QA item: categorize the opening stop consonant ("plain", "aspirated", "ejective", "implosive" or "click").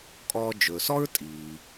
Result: ejective